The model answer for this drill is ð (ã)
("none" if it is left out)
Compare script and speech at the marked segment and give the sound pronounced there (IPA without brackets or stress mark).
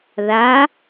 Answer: a